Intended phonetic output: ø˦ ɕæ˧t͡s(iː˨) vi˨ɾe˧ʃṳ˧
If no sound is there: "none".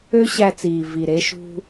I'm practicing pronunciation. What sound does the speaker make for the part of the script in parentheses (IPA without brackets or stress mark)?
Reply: iː˨